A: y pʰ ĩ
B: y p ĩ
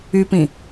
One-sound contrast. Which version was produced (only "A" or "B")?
B